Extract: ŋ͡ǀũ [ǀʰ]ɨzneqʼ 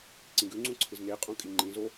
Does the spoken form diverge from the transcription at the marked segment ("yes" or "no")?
no